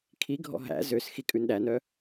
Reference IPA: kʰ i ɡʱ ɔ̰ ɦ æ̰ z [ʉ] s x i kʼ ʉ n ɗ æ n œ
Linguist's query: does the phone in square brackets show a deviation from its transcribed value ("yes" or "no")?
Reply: yes